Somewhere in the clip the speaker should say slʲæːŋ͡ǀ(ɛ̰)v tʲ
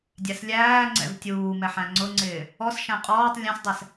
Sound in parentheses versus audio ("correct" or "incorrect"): correct